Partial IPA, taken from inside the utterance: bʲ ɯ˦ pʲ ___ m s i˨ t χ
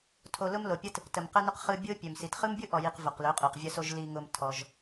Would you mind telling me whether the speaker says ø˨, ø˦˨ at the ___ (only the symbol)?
ø˨